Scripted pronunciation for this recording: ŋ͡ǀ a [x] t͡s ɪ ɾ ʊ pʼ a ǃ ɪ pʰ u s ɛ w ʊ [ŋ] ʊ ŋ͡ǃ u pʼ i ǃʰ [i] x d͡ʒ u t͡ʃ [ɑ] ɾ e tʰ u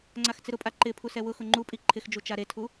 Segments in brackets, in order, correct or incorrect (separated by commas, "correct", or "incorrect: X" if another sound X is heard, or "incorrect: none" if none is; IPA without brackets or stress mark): correct, incorrect: x, incorrect: ɪ, incorrect: a